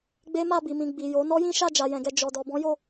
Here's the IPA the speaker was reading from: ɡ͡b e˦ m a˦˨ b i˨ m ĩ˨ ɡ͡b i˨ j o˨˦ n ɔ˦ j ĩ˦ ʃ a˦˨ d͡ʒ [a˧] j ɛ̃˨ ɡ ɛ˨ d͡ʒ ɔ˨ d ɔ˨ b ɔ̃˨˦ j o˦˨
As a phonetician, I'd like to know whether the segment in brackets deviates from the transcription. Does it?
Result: yes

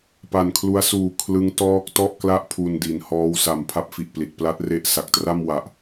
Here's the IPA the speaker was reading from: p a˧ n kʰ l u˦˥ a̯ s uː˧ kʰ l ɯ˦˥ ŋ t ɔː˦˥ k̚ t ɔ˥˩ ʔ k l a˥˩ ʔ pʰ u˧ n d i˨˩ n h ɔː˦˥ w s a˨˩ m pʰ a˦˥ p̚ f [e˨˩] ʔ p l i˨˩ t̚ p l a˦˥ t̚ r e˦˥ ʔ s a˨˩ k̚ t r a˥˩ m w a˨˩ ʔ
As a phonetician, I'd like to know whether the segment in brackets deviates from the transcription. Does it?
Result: yes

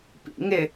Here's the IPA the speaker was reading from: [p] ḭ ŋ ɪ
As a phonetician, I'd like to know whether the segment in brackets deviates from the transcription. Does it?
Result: no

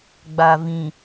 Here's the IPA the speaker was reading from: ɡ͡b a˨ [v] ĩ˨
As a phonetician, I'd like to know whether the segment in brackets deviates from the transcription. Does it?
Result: no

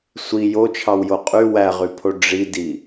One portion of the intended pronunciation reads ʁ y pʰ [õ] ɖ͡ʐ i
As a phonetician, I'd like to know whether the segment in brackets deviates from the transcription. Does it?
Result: yes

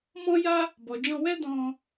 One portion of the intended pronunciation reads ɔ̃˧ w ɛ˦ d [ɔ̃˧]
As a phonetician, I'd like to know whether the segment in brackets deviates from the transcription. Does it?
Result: no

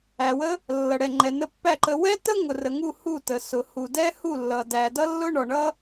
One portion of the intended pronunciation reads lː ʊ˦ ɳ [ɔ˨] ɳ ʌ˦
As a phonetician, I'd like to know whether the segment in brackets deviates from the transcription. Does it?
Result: no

